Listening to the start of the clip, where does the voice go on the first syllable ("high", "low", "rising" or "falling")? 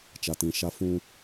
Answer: low